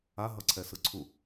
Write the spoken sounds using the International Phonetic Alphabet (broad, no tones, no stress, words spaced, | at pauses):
a ɦʌǀʰɛsɯǀʰu